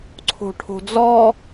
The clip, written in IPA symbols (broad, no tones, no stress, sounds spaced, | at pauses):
ǀʰ o̤ ʈʰ o̤ d͡z ɔ